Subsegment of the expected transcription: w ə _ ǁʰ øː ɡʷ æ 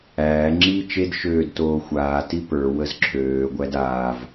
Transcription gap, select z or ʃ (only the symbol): z